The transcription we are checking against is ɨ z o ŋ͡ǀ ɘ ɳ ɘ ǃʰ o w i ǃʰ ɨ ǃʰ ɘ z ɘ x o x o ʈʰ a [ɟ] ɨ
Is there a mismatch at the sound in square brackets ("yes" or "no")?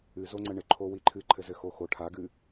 yes